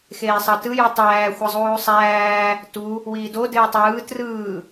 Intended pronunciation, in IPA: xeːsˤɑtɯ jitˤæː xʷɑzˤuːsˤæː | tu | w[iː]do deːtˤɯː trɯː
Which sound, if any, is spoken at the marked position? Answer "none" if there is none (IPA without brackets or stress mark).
iː